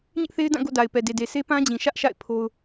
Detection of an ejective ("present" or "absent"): absent